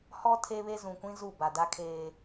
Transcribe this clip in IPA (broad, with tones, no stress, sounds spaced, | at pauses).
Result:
h ɔ˦ tʰ e˦ β e˦ z ũ˨ kʷ ĩ˦ z u˦˨ b a˨ d a˦ kʰ eː˦